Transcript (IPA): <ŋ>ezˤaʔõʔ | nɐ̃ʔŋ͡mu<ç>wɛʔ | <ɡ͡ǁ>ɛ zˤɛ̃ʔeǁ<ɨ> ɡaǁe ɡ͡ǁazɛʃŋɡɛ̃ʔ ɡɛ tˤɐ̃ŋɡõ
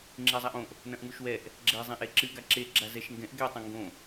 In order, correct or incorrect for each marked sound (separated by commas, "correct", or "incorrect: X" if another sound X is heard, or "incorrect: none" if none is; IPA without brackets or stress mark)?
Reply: incorrect: ŋ͡ǁ, incorrect: ʃ, correct, correct